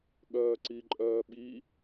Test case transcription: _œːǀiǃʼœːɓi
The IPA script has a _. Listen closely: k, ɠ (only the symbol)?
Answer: ɠ